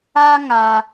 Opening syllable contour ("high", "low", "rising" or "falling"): high